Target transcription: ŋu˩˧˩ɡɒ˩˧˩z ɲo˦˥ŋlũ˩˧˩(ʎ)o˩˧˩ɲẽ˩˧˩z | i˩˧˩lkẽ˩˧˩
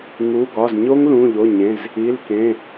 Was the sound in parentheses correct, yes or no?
yes